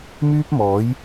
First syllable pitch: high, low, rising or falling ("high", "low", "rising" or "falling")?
high